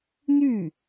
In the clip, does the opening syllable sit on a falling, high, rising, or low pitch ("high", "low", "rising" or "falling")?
falling